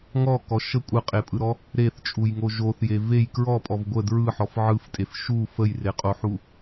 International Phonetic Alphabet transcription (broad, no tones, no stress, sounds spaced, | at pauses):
ŋ ɔ k ɔ ʃ ə kʷʼ ə qʼ e pʼ ɯ ɾ ɔ | ɾ e θ t͡ʃʼ u j ŋ o ʒ o θ j e v e j k ɹ ɔ pʼ ɔ v ɡʷ ə d ɹ ɯ ħ ɔ f ʕ ɯ f tʼ e f ʃ u f ə j r e qʼ o ħ u